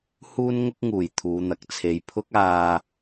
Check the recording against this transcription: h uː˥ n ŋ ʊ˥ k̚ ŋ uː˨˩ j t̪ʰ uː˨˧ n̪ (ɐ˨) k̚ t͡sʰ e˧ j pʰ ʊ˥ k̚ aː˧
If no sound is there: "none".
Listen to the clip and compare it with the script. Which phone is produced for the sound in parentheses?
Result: ɐ˨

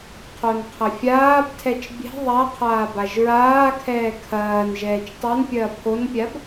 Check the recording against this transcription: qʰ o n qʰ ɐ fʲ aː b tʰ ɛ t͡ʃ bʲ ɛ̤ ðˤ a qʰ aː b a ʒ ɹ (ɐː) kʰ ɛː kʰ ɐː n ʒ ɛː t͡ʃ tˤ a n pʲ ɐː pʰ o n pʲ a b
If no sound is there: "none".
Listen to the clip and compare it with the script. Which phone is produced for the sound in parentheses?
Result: aː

